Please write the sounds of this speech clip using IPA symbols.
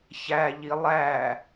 çæʎi lˠæ

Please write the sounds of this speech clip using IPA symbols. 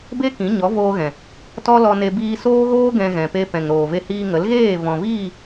be˦ kĩ˨˦ɲɔ˨˦voː˧ɣɛ̃˨ | tɔ˦lɔ˧ne˧ biː˧soː˦ɣoː˦ ɡɛ̃˧ɣɛ̃˨pe˧ pɛ̃˨ŋɾoː˨ve˧hiː˧ ŋə˨˦lɣeː˦˨ vɔ̃˨viː˦˨

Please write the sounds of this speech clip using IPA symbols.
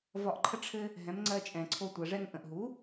vɒ˧ʔǃʰə˥ʈ͡ʂʰɘ˥ | ɦɛ̃˩˥mŋ͡ǀɜ˧t͡ʃʼɛ̃˩ǀʰo˧ tʷɜ˩ʐɛ˧ŋ ʔə̃˩ʔɦu˩˥

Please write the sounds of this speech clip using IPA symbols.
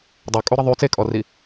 dˤokʼuɾə ðˤy t͡sekʼɔri

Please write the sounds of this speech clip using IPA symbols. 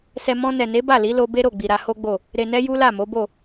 sɛ˧ mɔ̃˧nɛ˨ne˨˦ ba˦˨li˨˦lo˧ be˦ɾo˦˨ɡ͡bi˨ ɾa˧ho˦ɡ͡bo˦˨ | ɾe˨nɛ˧ ju˦la˦˨mo˨˦bo˦˨

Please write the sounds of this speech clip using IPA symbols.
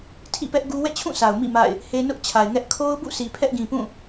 tʰḭ˦˨pɛ˦ʔɡu˦ wɛ̰˦˨t͡ɕʰũ˦˨sa˨ʊ̯ mḭ˦˨ ma̰˦˨ɪ̯ | he˦ nʊ˦ʔt͡ɕʰa˨ɪ̯ŋɛ˦ʔ kʰo˦ʊ̯bṵ˦˨ si˨pʰɛ˦ʔɡĩ˨pũ˦˨

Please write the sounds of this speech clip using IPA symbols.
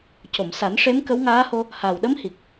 co˨˩˨msa˨˩˦nʂe˧˥m kə˧˥wŋaː˧˥ho˧ | ha˨˩wɗə˧˥mhi˨˩k̚

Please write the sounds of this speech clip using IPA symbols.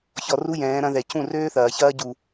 çɔ˧ru˦jɛ̃ː˨˦ ɾɐ̃˧ðɛ˨ cũ˦˨røː˦θɐː˨çɐː˦ ɟu˧

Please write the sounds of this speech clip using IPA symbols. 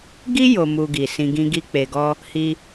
ɡi˦ jo˧mu˧ɡi˨ sĩ˨ɡĩ˧ ɡi˧k͡pe˨ɡɔ˧ | hi˧

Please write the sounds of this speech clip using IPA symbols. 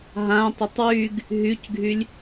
ɦãtˤətˤ wyɡ | ɦycɡʱylʲ

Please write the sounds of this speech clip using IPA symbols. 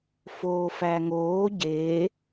foːfæŋoː ɟe

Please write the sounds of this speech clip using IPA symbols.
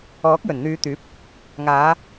ɔː˨˥k̚jɵ˨˩nn̪yː˨˧t̪yː˨˥p̚ | ŋaː˨˧

